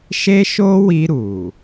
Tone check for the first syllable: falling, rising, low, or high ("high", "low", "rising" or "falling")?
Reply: high